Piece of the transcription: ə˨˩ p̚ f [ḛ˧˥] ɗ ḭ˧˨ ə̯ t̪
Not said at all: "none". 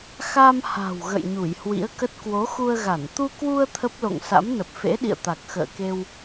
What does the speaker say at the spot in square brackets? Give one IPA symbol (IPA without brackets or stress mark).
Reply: ḛ˧˥